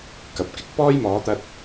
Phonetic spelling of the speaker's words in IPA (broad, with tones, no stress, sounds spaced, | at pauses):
k ɐ˨ p̚ k ɪ˥ k̚ p ɔː˥ j m ɔː˨˥ t̪ ɐ˧ t̚